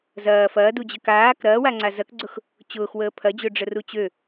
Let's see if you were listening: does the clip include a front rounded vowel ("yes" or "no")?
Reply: yes